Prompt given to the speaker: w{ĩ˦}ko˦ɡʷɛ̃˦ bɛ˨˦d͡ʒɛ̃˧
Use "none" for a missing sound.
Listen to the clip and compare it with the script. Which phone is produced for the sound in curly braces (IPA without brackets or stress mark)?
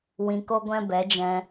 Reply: ĩ˧